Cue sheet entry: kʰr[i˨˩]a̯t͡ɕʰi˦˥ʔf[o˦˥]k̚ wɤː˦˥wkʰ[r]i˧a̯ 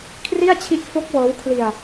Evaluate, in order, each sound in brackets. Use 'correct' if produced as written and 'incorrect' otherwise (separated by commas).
incorrect, correct, incorrect